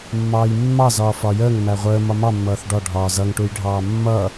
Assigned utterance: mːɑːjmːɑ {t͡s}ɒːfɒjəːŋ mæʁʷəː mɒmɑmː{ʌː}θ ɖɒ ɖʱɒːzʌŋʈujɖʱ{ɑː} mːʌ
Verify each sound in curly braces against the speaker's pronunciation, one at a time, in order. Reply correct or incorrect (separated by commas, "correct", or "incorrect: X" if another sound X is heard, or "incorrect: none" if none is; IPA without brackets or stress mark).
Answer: incorrect: z, correct, correct